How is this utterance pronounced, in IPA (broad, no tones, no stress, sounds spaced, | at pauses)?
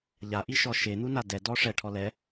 ʎ a ʔ i ʃ ɔ ʃ e n̪ u n a d ɛ d ɔ ʂ ɛ ʈʰ ɔ l ɛ